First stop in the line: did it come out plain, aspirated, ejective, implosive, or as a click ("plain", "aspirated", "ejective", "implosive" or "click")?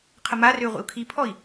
aspirated